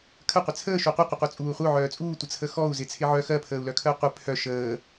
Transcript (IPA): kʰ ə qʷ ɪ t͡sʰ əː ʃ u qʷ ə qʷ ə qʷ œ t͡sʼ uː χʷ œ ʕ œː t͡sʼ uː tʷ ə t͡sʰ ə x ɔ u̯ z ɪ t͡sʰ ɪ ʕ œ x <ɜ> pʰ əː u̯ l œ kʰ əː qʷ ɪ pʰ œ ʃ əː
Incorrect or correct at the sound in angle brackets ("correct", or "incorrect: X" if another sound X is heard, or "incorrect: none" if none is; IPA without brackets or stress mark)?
correct